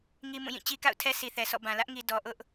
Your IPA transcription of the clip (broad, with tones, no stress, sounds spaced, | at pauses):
ŋ i˦ m ũ˦˨ j ĩ˦˨ t͡ɕ i˦ k a̰˦˨ ʊ̯ tʰ ɛ˦ sʰ i˨ θ ɛ˨ s ɔ̰˦˨ b ã˨ l ä˦ ʔ ŋ i˨ d ɔ˨ ʔ ʊ˦ ʔ